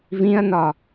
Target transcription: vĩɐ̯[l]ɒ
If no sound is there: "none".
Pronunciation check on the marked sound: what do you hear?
n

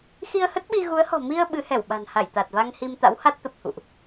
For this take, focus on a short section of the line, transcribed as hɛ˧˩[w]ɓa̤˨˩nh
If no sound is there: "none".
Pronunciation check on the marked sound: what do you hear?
w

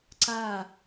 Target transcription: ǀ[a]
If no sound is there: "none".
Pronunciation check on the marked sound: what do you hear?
a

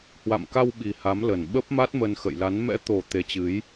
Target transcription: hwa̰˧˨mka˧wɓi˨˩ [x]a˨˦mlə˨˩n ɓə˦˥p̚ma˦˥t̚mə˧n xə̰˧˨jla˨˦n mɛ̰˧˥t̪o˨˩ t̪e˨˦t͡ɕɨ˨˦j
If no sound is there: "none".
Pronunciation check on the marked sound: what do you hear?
h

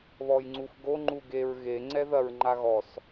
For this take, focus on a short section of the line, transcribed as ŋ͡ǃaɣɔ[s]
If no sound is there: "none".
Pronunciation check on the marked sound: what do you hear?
s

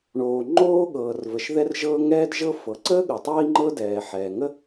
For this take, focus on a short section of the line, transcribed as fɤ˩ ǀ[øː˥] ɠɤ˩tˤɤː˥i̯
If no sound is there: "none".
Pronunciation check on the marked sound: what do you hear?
əː˥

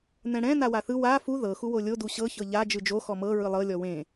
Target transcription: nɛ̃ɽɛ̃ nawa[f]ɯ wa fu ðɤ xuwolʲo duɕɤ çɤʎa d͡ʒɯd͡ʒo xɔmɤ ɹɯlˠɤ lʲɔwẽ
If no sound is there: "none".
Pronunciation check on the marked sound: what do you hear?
θ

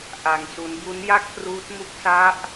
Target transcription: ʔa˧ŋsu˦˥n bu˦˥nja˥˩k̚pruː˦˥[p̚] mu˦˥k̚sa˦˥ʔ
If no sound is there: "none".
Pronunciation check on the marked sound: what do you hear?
t̚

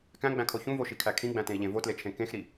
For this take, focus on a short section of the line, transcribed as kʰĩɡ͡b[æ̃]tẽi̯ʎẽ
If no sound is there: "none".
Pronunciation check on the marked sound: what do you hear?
æ̃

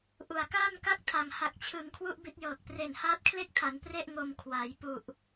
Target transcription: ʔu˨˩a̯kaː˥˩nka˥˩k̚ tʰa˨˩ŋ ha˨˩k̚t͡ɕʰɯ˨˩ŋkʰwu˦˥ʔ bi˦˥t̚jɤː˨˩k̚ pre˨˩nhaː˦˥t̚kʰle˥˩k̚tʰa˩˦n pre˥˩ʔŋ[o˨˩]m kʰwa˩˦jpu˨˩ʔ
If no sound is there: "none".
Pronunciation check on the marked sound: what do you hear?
o˨˩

